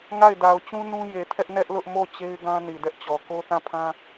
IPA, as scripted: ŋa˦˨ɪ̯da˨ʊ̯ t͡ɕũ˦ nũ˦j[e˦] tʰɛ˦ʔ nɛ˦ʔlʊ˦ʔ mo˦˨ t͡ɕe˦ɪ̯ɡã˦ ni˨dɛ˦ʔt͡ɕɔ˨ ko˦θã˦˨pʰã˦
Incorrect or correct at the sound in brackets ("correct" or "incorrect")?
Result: incorrect